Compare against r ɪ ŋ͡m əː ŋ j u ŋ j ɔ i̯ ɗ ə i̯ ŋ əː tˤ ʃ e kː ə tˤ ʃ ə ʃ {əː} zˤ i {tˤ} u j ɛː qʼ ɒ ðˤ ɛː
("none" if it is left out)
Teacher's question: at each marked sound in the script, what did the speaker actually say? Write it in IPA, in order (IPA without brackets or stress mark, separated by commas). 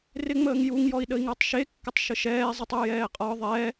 ɛː, tˤ